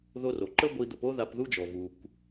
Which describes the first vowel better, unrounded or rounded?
rounded